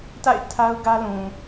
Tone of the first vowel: falling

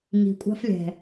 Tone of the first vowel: low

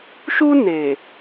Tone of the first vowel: high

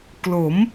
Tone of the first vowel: rising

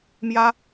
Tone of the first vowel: high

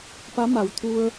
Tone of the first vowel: rising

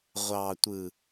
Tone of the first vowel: low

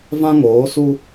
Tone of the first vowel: high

